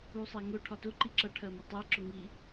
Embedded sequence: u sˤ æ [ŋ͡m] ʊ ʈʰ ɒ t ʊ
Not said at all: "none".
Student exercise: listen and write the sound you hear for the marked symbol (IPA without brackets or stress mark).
ŋ